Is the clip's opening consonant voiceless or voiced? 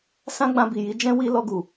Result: voiceless